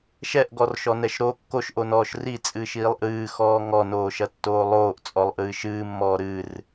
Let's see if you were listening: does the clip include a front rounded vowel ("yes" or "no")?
no